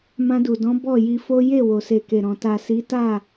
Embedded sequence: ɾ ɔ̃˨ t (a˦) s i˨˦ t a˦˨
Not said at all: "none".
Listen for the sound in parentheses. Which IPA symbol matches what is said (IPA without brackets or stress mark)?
a˨